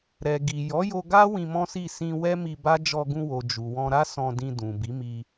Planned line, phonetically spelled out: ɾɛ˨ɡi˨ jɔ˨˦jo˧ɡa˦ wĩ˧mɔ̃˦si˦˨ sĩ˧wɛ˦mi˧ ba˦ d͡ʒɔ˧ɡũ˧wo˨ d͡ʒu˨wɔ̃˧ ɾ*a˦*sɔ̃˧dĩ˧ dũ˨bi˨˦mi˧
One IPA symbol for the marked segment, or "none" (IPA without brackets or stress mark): a˦